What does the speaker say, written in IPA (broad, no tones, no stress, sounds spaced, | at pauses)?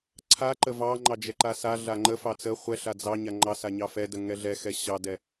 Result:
ǀʰ a ǃ ə v ɑ ŋ͡ǃ ɑ d͡ʒ ɛ ǃ a s a ɮ a ŋ͡ǃ ə f ɑ t͡s ə χʷ ɛ ɬ a d͡z ɑ ɲ a ŋ͡ǃ ɑ s a ɲ ɑ f ɛ d ə ŋ ɛ ɮ ɛ x ɛ ɕ ɑ d ɛ